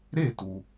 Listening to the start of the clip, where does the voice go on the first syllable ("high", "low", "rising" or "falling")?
falling